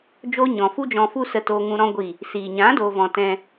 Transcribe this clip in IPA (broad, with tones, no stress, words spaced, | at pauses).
d͡ʒoː˦ɲɔ̃˨ fu˦d͡ʒɔ̃˧fu˦ sə˧toː˧ŋũ˧ ɾɔ̃˦ ɡʷi˦˨ | siː˨ ɲã˨˦doː˨vɔ̃˨ tɛ̃˧